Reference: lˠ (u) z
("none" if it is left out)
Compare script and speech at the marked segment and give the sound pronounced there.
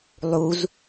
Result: u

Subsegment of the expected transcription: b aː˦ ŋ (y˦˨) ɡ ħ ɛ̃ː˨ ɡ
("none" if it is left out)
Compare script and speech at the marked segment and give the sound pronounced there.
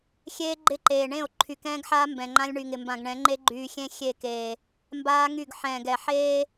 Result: y˦˨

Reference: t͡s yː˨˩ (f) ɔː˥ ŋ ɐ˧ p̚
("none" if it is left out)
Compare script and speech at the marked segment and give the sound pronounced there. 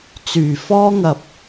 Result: f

